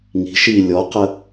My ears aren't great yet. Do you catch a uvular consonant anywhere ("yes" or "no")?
yes